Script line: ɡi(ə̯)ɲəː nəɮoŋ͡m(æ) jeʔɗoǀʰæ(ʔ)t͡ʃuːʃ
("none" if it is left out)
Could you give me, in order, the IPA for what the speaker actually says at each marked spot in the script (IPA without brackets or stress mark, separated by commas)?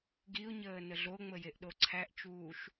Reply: ʊ̯, ə, ʔ